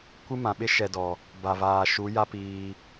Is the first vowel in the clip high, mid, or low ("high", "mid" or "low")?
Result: high